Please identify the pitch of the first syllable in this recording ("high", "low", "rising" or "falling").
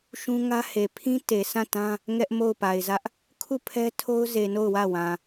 high